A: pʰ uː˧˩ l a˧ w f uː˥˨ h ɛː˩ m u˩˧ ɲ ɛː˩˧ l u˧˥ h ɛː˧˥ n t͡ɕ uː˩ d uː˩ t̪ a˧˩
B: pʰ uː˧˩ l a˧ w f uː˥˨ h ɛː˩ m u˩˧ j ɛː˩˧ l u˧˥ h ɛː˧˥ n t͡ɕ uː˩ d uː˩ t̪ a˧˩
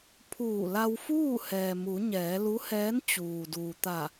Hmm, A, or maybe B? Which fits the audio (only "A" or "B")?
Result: A